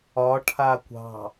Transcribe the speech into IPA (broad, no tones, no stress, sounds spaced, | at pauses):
ɒ ʈʰ a kʷ ɑ̤